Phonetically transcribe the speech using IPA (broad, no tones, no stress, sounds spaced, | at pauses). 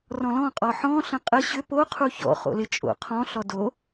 r ɔ̃ l ɔ̃ qʼ ɔ ħ ɔ̃ ɬ ə̃ qʼ ə ɕ ʏ p o qʰ u ç ɔ̰ χ o̰ l ɪ t͡ʃʼ o̰ qʰ ɔ̃ ɬ ɔ d o